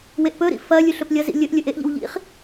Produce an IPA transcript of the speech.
w e ʔ p ɵ ɾ ḭ f ɐ lʲ ʉ ɬ ɵ p lʲ ɐ z ḭ lʲ ɵ ʔ lʲ ɵ ʔ e ʔ ʎ ḭ w ʎ ḭ χ

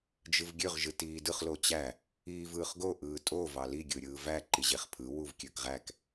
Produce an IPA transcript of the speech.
d͡ʒ ɯ v ɡʲ ø ʁ ʒ ɯ t iː d ɯ χ l o t͡ɕ æ | iː v ɯː χ ɡ o ʔ ɯː tʼ o v ɑ l i ɡʲ ɯː ɾʲ ɯː v æ ǃ i ʑ e χ pʰ ɯ w u v kʲ ø k ʁ æ k

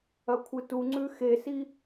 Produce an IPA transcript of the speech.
ɐ kʷʰ ɨ t u ŋ͡ǀ ʉ x e s i

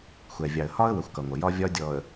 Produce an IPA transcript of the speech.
xʷ ɛ˨ vʲ ɑ˨ ə̯ h ɒ˦ ə̯ w ə˨ xʷ k ʌ˨ ŋʷ ə˨ j ɒ˦ vʲ ɒ˦ dʲ ɔ˨ ə̯

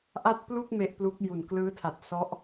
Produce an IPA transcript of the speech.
ʔ a˥˩ t̚ p l u˥˩ k̚ m e˦˥ ʔ p l u˦˥ k̚ j u˨˩ n k l ɯː˦˥ tʰ a˨˩ t̚ s ɔ˦˥ ʔ

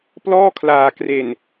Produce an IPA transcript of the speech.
p l ɔː˥˩ kʰ l aː˨˩ k r e˨˩ n

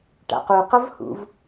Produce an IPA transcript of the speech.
ʈ a̰ q o q ʌ v h ṵ v

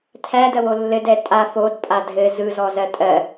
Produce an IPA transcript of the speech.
tʰ æ d ɜ w o lː ɘ d ɛ tʼ a f o d pʼ a dʱ ɘ z ɯ z ɔ z ɜ tʼ ɜ

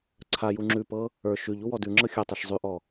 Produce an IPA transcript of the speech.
ǀʰ a j u ŋ͡ǁ ʉ p ɤ | ə˞ ʃ ʉ ʎ u w ɔ d ʉ ŋ͡ǁ ɤ xʲ ɤ tˤ a ʃ zˤ ʉ ʔ ɔ

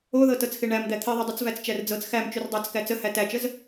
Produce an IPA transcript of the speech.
o ð ɤ t ɤ t͡s x e ɳ æ m d̪ æ t̪ʰ i ðˤ u dˤ u t͡s v æ t͡s t͡ʃ æ r d͡z ɤ t͡s x æ m t͡ʃ u r dˤ ɑ t͡s k æ t͡s ə h æ t æ t͡ʃ ə z

